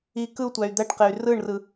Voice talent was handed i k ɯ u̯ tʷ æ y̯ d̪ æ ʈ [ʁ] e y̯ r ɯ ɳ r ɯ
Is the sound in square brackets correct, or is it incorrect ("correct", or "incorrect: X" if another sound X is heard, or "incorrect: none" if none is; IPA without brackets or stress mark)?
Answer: incorrect: q